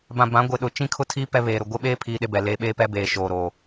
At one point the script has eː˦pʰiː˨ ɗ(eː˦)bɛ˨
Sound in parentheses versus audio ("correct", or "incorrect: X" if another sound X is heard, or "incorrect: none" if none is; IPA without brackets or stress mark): incorrect: e˦